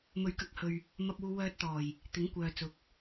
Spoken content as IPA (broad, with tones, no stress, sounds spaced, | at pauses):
m ɵ˨˥ ɥ k ɐ˨˥ k̚ h ɵ˨ ɥ | m ɐ˧ p̚ uː˧ w œː˧ t̚ t̪ ɔː˨˩ j | t̪ ɪ˨˥ ŋ kʷ œː˨ t͡s ʊ˨˥ k̚